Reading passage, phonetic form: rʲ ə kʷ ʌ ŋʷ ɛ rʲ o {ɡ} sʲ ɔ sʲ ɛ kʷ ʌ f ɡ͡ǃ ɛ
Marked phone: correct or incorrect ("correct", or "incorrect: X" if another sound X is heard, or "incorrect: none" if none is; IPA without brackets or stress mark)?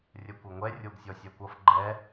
correct